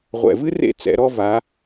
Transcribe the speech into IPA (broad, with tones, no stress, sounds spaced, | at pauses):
ʁʷ ɛ̰˨˩ v ɨ˥ r ḛ˥˨ t͡s ɛ̰˨˦ ɾ ɔ˥ v a˨˦